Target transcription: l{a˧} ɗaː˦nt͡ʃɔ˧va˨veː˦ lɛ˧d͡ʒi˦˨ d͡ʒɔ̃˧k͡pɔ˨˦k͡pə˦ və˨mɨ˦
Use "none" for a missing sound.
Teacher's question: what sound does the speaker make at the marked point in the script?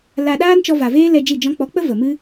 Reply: a˧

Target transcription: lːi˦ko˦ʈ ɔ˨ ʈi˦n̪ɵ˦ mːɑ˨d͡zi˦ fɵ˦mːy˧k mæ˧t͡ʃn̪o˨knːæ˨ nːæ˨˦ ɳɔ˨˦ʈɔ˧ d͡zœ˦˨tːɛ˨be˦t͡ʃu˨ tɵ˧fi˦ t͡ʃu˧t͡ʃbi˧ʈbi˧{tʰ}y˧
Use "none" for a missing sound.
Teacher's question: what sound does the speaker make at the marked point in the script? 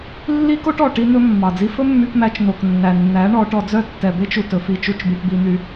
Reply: n̪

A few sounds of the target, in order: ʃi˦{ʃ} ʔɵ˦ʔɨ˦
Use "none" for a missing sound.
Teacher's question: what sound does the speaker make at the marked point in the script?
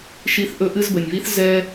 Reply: θ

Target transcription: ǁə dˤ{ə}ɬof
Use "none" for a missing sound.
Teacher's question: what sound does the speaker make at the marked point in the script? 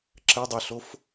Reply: ə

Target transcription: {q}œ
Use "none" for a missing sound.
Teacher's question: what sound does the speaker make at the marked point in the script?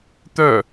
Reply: t̪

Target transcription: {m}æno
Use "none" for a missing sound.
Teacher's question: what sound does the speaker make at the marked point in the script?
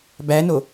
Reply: b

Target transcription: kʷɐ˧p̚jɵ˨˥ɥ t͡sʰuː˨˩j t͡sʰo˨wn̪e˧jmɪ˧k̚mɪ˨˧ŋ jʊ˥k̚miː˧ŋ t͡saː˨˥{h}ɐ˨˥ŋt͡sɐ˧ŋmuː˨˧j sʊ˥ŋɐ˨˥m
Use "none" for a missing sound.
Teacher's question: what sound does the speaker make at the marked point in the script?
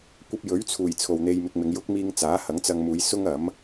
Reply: h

